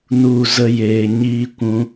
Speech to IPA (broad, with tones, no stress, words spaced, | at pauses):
nu˨ zə˧jeː˨ɲiː˧kʷũ˧